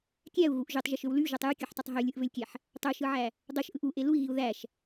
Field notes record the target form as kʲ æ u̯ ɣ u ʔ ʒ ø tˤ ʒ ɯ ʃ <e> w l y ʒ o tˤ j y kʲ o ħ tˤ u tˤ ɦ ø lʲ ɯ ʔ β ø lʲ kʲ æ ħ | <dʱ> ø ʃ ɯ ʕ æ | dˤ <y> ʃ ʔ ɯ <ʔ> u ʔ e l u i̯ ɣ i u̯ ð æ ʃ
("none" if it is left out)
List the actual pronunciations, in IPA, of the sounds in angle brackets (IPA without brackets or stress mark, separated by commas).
ø, tˤ, ø, ʔ